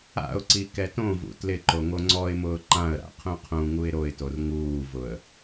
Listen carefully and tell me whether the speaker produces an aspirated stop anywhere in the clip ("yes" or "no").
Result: yes